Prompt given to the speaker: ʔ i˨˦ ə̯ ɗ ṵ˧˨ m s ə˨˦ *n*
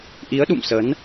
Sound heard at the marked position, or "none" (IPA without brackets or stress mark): n